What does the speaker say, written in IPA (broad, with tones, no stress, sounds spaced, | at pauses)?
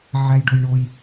ʕ æ˧ j ɖ o˧ j ɳ o˧ j